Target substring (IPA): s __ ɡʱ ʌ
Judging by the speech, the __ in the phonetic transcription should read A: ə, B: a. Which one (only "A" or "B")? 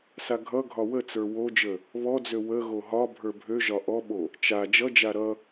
B